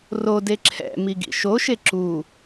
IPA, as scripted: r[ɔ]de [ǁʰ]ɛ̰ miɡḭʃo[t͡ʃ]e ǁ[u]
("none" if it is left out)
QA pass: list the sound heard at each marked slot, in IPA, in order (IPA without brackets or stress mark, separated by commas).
o, ǁʰ, ʃ, u